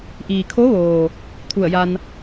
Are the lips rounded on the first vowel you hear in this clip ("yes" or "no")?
no